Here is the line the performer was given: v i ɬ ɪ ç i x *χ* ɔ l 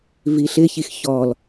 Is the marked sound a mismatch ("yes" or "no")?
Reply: yes